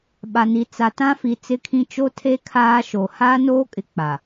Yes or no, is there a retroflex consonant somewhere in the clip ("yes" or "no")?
no